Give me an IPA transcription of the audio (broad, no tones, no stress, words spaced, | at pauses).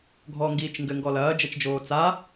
ɡʱɔŋɡiːt͡ʃ ŋɡɘŋɡɔ lɐːd͡ʒɛt͡ʃd͡ʒoː t͡sa